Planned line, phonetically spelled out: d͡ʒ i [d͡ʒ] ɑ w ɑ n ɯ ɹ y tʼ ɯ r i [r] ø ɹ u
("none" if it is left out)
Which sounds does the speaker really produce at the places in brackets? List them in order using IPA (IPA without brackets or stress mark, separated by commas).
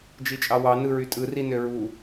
t͡ʃʼ, n